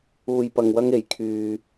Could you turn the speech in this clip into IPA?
uː˧ j p ɐ˧ ŋ w ɐ˥ ŋ e˨˥ j kʰ yː˧

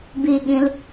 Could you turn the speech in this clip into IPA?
b i ɠ ĩ l

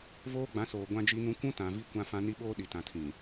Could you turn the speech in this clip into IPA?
v oː˦ ɡ͡b ã˨˦ s oː˨ ɡʷ ã˦ d͡ʒ i˦ n ũ˦ kʷ ũ˦ t ã˨ v i˦ kʷ ã˦ f ã˦ n i˦ ɓ oː˦ ɗ i˨ t ã˨ tʰ ĩ˨

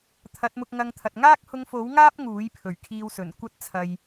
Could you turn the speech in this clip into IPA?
t̪ʰ ɐ˨˥ t̚ m ʊ˧ k̚ ŋ ɐ˧ ŋ t̪ʰ ɐ˨ t̚ ŋ aː˥ k̚ h ʊ˧ ŋ f o˨˥ w ŋ aː˥ p̚ ŋ uː˨˥ j pʰ ɵ˨˩ ɥ kʰ iː˧ w s ɵ˨˩ n kʷ ɐ˥ t̚ t͡sʰ ɐ˨ j

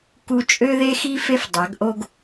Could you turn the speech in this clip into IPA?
k u˦ t͡ʃʼ ø˦ ð e˦ x i˦ f e˦ f dˤ a˨˦ ɡ ʔ o˦ ɡ

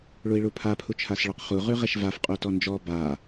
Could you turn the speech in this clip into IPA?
ɭ u i̯ ɭ u pʰ a pʰ u t͡ʃʰ a s ɭ ɔ q χ u ʁ ʉ ʁ ɛ ʃ v a f qʼ u t ɔ n d͡ʒ ɔ b a

